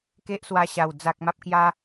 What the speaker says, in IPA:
k e˦ ʔ s w a˧ ɕ a˨˩ w d͡z a˨ k̚ m a˦ p̚ k j a˦

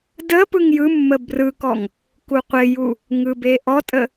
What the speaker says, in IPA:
d ə p ɯ ŋ j ɯ mː ə b r ɯ k ɔ ŋ | k u qʷ ɪ j u | ŋ ɯ b e ʔ ɔ tʼ ə

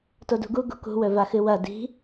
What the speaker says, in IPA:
t o d ṳ ɡ u ɡ ṳ k ṳ w ɵ v a x ɨ w ɐ d i̤

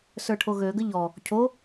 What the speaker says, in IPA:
s ə˞ ʈʰ o ɣ ø ɡ ə ʎ ɔ | cʰ o

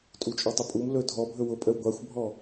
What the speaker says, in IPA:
tʼ u t͡ʃʼ ɔ tˤ ɵ pʼ u m l ɵ dʱ ɔ bʱ ɵ w ʊ pʼ ə w ɡʷ a xʷ bʱ ɔ

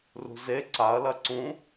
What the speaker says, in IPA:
r ṳ z e ǀ a ɐ̯ l ɐ ǀ ũ

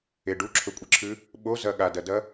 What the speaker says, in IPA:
e ɖ u ǁʰ ɵ kʷʼ i ǁʰ ʉ | ɓ o z ɐ ɠ a d ɐ d ɐ

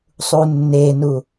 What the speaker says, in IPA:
sˤ u nː e n u

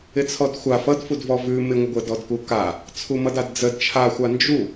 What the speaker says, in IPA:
ɪ t͡sʰ ɔ d xʷ a f ʌ d f u d v ɔ v ʉ m ɪ ŋʷ ə ɡʷ ə d ɔ d k u k a | t͡sʰ u m ʌ d a d d͡z ə d t͡ʃʰ a xʷ a n d͡ʒ u

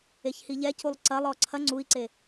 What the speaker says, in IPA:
e ç h i ʎ ɛ c u lˠ ǀ ɐ lˠ ɔ ǀʰ ɐ ŋ͡ǀ u i̯ ǀ e

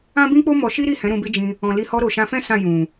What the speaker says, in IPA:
ã˦ b ĩ˦ k͡p o˦ m ɔ˧ ʃ i˦ ɾ i˦˨ h ɛ̃˨˦ ɾ ũ˧ b e˦ d͡ʒ ĩ˧ | ɔ̃˨ l i˧ h ɔ˧ ɾ o˨ ʃ ã˧ f ɛ̃˦ s ã˦˨ j ũ˨

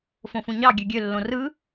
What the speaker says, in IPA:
f õ f ũ ɲ ɑ ɡʲ ø ɡʲ ø lː õ r ɯ

